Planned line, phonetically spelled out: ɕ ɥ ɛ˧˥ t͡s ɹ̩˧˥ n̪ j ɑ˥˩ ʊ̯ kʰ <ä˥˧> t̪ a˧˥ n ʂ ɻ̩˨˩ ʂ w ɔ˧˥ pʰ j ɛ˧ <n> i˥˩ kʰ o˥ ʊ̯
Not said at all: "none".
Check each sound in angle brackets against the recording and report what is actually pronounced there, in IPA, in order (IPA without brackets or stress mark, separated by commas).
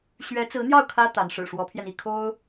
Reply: ä˥, n